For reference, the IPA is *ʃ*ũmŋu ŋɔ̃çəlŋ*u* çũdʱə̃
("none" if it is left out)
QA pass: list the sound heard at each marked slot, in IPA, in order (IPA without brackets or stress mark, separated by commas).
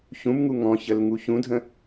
ç, u